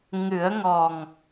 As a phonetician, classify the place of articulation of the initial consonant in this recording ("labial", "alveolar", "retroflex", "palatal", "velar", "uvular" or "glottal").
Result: velar